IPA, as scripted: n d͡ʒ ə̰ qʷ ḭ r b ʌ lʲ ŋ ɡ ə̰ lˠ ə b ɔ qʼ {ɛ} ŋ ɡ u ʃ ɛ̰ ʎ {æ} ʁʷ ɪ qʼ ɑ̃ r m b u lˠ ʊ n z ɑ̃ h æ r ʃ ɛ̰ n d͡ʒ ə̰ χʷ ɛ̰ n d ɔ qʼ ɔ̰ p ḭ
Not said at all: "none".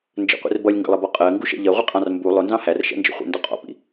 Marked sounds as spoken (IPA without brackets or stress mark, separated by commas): ɜ, ɜ